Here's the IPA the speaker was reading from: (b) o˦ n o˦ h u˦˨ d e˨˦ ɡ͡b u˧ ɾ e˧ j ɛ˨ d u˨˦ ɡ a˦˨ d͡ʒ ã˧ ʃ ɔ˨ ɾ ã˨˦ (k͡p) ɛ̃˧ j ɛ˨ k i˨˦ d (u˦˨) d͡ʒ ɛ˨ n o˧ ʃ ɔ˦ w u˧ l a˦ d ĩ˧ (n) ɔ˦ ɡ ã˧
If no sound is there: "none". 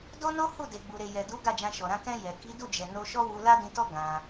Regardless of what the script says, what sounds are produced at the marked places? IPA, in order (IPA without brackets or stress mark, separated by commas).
d, k, u˦˨, t